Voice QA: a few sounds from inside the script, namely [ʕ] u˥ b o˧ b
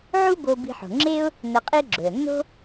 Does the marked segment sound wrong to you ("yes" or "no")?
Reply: no